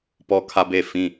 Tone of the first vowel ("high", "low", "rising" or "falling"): high